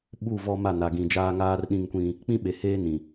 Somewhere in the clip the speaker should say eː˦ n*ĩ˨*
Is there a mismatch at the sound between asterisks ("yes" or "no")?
no